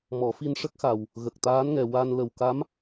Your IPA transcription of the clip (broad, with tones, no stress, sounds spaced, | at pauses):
m ɔ˨˩˦ f i˧ n ʂ ə˦˥ k̚ x a˨˩ w | ɣ ə˨˩ k̚ t̪ aː˧˥ n ŋ ɛ˨˩ w a˧ n l ə˨˩ w k a˧˥ m